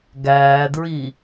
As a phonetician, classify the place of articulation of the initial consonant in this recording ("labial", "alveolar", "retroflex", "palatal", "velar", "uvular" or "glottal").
velar